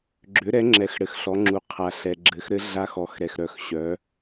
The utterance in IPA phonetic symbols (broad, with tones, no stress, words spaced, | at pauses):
ɡ͡ǁʏ˨˦ɾɛ˨˦ŋ͡ǁɛ˨˦x ɽɘ˨xɬɔ˨˦ŋ͡ǁu˨ qʰa˨ɬɛ˨ ɡ͡ǁɘ˨˦xɾɘ˦˥ɮa˦˥x ɔ˨˦xɾɛ˨xɾœ˨xɕœ˨˦